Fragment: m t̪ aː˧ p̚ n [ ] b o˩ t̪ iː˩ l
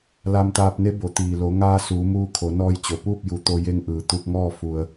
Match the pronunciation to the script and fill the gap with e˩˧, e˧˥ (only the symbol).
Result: e˧˥